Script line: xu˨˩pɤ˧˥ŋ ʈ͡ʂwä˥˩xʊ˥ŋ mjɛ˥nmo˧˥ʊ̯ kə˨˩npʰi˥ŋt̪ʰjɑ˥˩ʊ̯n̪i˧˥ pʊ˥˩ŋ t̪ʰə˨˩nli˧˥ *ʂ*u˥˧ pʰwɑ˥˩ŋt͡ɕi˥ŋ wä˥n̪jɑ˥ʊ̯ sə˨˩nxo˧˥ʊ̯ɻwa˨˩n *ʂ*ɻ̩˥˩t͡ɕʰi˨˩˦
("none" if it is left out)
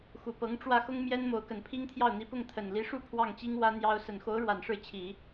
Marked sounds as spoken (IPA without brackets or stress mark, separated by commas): ʂ, ʂ